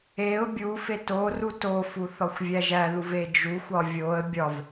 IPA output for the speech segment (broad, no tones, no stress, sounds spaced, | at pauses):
e ʊ̯ bʲ u f e t o r u t o f u θ ɒ xʷ vʲ æ ʒ æ ð u v e d͡ʒ u xʷ ɒ vʲ o ə̯ bʲ ɒ v